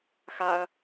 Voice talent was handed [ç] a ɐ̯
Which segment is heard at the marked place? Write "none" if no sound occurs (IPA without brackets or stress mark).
x